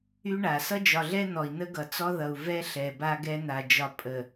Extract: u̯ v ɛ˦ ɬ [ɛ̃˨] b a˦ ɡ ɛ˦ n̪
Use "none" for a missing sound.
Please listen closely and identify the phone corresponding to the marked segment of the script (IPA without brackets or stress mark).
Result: ɛ˨